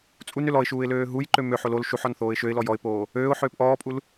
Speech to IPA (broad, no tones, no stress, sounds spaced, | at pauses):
t͡sʼ u n ø l ɔ ɪ̯ ʃ uː ɪ̯ l øː ɦ u j ǃ ø m ø ħ o l o l ʃ u ħ ɔ n θ oː ɪ̯ ʃ ø ɪ̯ l ɔ j ɔ ɪ̯ p oː | øː ʊ̯ ħ øː p ʔ ɔː pʼ u l